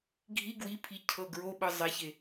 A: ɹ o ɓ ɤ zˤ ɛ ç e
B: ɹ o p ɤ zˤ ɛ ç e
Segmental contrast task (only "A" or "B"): A